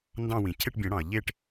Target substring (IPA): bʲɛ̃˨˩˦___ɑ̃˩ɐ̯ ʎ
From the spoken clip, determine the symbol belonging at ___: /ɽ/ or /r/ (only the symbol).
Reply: ɽ